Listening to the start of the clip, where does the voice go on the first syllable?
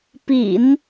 low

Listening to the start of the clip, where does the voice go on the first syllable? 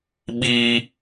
high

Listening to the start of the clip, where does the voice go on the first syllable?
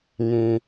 low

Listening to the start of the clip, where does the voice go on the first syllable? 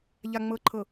low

